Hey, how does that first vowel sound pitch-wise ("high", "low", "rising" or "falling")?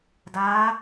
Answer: rising